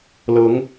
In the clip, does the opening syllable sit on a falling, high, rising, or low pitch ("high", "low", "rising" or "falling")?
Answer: rising